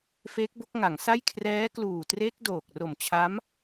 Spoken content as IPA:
f eː˦˥ k̚ b o˦˥ k̚ ŋ a˩˦ ŋ s a˥˩ j kʰ r ɛː˦˥ k l uː˨˩ t r e˦˥ k̚ d oː˨˩ k̚ r o˨˩ m t͡ɕʰ a˦˥ m

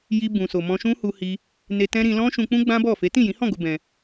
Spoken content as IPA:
j i˧ b ũ˨ s o˨ m ɔ̃˧ ʃ ũ˦ h u˧ h i˧ | n e˧ t ɛ̃˦ ɾ ĩ˧ l ɔ̃˦ ʃ ũ˧ k͡p ũ˦ ɡ͡b ã˦ b ɔ˦˨ f e˨˦ t ĩ˦˨ j ĩ˨˦ h ɔ̃˦˨ ɡ o˨˦ b ɛ̃˧

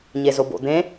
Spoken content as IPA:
ɲ e z o b o̰ d̪ ẽ

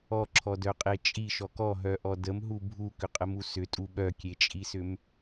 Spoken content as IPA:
ɔ ǁʰ ɔ d œ qʼ e t͡ʃʼ i ʃ ɔ k ɔ ɦ œ ʔ ɔ d ə m ɦ u bʱ u k ʏ qʼ ə m u s ʏ tʼ u ɓ œ kʲ e t͡ʃʼ i s ʏ m

